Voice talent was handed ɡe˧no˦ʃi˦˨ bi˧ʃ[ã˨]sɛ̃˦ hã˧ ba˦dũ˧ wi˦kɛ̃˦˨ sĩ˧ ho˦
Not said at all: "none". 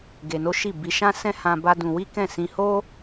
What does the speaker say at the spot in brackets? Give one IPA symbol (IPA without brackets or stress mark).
ã˦